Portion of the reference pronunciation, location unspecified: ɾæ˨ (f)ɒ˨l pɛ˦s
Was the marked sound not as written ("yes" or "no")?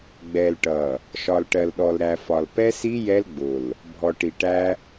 no